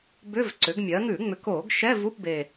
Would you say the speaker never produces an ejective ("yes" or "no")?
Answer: yes